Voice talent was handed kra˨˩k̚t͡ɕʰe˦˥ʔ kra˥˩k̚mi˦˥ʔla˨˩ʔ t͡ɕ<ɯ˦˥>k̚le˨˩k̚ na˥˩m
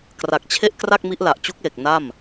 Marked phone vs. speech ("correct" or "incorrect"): incorrect